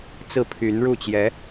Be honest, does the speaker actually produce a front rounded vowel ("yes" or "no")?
yes